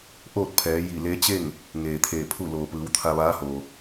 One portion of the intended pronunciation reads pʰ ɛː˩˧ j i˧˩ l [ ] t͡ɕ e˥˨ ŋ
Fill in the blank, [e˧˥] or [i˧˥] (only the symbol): e˧˥